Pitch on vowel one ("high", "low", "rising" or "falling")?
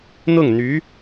falling